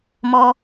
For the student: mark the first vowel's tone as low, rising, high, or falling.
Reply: high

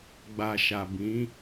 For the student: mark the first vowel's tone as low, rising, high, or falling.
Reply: low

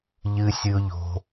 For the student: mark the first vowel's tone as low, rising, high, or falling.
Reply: high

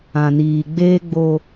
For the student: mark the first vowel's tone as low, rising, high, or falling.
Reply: low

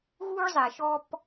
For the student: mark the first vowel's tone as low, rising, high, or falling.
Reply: high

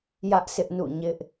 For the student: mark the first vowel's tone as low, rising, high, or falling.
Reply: high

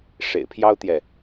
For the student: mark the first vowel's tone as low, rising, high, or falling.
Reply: low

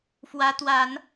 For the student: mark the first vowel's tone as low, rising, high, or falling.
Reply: rising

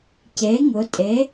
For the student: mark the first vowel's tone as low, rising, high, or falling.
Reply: rising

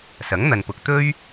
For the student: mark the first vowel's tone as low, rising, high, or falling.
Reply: rising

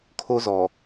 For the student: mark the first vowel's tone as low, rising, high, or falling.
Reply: high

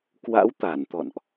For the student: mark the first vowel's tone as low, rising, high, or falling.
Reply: rising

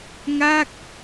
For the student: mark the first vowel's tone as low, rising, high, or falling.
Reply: falling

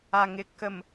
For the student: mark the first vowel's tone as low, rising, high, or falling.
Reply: low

